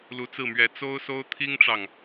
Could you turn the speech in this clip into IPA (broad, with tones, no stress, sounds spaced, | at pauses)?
l u˧˥ t͡s ɹ̩˥˩ m ɥ ɛ˧˥ t͡s o˥ ʊ̯ s o˥ ʊ̯ t̪ʰ i˥ ŋ ʈ͡ʂ ɑ˨ ŋ